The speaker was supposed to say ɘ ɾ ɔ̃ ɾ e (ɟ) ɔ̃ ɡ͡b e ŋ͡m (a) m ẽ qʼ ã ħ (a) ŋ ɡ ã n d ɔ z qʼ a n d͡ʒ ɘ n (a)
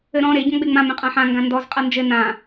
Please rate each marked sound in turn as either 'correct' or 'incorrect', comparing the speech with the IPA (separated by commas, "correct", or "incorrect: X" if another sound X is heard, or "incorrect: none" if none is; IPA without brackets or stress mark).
correct, incorrect: ã, incorrect: ã, incorrect: ã